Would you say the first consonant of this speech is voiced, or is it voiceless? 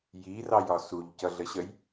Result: voiced